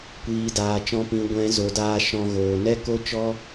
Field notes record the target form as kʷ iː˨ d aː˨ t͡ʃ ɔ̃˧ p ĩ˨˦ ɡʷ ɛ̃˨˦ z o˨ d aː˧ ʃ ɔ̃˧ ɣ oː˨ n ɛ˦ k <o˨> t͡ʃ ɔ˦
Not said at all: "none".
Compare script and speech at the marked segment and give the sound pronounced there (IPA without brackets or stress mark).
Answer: o˦